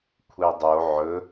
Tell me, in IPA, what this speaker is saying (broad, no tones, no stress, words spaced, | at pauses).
kʷʰedˤo ʕɵ